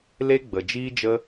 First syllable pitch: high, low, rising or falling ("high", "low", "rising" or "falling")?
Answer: high